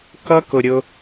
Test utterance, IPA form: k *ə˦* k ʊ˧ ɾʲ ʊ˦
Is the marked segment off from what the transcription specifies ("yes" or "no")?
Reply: yes